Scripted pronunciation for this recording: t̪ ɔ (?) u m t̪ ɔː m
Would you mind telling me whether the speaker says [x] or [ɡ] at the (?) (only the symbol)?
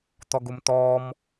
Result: ɡ